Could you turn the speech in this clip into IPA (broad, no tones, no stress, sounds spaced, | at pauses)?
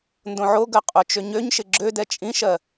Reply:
n d õ ʕ o ɡ ɜ qʼ o t͡ʃ ø ɲ ø ɲ ʃ ɪ ɡ͡ǁ ø d ɛ t͡ʃʼ ĩ ʃ ɜ